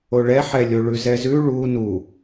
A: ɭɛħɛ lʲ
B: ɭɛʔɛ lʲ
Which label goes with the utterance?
A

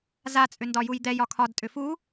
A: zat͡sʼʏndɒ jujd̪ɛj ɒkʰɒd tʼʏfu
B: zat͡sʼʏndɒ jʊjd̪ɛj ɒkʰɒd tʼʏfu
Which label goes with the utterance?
A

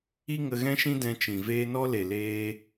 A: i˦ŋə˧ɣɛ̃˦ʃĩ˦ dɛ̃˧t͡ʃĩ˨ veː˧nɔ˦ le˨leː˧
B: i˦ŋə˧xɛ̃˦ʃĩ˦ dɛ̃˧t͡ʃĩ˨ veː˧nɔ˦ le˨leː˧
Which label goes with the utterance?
A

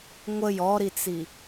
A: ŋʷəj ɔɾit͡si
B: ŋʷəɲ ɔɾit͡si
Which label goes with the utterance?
A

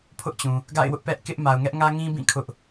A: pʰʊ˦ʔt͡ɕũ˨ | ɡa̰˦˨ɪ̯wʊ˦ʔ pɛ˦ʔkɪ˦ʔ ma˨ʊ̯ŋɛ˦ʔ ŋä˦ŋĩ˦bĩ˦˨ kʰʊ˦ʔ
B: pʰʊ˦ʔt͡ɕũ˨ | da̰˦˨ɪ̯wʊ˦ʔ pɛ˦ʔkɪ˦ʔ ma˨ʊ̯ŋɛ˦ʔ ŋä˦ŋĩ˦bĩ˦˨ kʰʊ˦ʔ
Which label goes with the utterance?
A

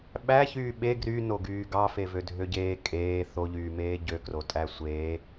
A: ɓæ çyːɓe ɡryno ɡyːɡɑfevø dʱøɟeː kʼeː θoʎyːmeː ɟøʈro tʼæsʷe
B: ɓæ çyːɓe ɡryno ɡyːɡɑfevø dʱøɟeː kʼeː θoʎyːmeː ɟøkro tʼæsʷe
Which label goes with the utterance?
B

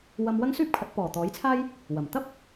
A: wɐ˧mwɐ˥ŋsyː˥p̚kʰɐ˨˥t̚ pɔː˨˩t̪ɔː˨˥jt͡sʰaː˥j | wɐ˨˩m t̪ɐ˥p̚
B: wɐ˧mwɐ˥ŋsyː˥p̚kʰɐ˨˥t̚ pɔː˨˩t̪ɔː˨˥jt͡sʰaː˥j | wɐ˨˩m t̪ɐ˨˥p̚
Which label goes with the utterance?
A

